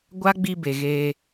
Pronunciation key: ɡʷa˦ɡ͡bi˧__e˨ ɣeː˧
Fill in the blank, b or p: b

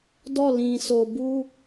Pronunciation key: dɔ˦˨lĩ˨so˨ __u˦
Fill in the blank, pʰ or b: b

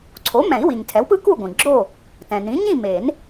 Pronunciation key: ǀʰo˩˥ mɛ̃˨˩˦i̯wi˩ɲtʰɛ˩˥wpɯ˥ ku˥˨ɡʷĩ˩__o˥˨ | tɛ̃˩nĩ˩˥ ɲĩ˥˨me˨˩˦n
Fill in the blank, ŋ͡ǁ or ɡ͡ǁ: ɡ͡ǁ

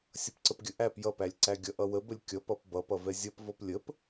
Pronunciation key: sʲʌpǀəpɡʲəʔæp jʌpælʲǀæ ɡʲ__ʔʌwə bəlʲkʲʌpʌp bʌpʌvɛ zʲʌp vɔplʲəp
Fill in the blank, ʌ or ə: ʌ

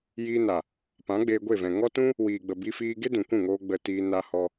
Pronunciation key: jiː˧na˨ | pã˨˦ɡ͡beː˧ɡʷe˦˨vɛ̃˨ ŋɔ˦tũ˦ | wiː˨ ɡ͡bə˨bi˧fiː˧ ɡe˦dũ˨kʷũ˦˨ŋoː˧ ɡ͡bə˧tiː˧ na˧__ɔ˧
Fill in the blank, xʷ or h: h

